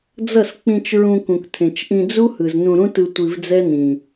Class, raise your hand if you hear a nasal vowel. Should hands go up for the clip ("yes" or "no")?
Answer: yes